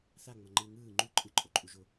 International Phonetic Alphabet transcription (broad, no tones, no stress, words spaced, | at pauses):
θaŋ͡mʌ ŋ͡ǃɯ ŋɯː ŋ͡ǃu ǃʼɯǃʼoǃʼuʒo